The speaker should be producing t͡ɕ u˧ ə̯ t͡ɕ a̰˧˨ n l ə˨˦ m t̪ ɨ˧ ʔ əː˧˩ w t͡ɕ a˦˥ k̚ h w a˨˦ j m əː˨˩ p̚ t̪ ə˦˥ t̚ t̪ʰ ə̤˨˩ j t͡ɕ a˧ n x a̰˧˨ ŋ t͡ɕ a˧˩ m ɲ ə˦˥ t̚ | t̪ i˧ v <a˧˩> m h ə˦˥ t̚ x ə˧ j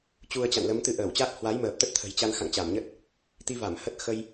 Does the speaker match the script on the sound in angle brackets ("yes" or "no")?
yes